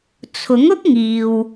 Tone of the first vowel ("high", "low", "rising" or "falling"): rising